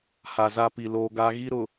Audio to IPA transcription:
h a˨ z a˦ p i˨ l oː˦ ɡ a˦ ɣ i˦ ɾ ʊ˨

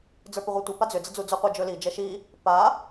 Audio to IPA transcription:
d͡z ə˞ p ʏ ʁʷ i tʷ i p a d͡z ʏ d͡z ə d͡z u d͡z ɵ qʷ ɛ d͡ʒ ɵ l i d͡ʒ ɛ ʃ i | p a

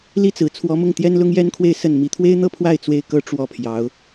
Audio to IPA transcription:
l i˥ t͡s ɹ̩˨˩ t͡sʰ w ɔ˧˥ m ʊ˥˩ ŋ t̪ j ɛ˥ n l ʊ˥ ŋ j ɛ˥ n kʰ w e˥˧ ɪ̯ s ə˥˩ n m i˧˥ t̪ʰ w e˥ ɪ̯ n̪ ɤ˥˧ pʰ w a˥˩ ɪ̯ t͡s w e˥ ɪ̯ k ɤ˥ ʈ͡ʂ w ɔ˥ pʰ j ɑ˧˥ ʊ̯

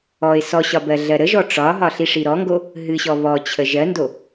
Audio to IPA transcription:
ɔ ɪ̯ s ɔ ɕ ɒ b ɜ ɮ ɜ ɾ ə ʒ ɔ ʈ͡ʂ ɒ ɦ ɒ ɬ i ʂ i ɾ ɔ ŋ ɡ o | ɦ ɨ ɕ ɔ β ɔ t͡ɕʰ ə ʒ ɜ n d o

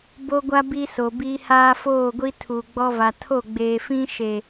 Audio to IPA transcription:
b o˦ ɡʷ a˦ b i˦ s o˨ b i˦ h aː˦ f oː˦˨ ɡʷ i˦ tʰ u˨ ɡ͡b ɔ˦ v a˨ tʰ o˦˨ ɡ͡b eː˨ f ĩ˦ ʃ e˨

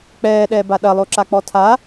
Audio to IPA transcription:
k͡p ɛː ɗ ɛː b a ɗ ɐ lˠ o ǁ a k͡p ɔ tʰ a

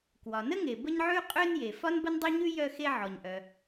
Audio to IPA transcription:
k w ɒ˩ n ə˥ ŋ e˩ b ə˥ ɲ ʕ ʉ˥ qʼ ø˥ n j e˩ f ɒ˥ n b ə˥ n dˤ ø˥ ɲ ʉ˥ j œ˥ x e˥ ʕ ɔ˩ ɲ ʔ œ˩

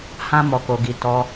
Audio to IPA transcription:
h ã˦ m ɔ˧ k o˧ ɡ i˧ t ɔ˧

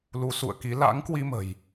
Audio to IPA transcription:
l u˨˦ s ṵ˧˨ ə̯ k i˨˦ l a̰˧˥ ŋ k w i˧ m ə̤˨˩ j

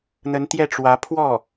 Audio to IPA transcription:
n̪ ə˧˥ n t̪ j ɛ˥˩ ʈ͡ʂ w ä˧˥ pʰ w ɔ˥˩

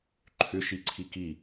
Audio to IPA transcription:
ǃʰ ʏ ʃ i ǀʰ i k i

